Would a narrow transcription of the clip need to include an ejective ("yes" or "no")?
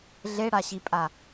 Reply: yes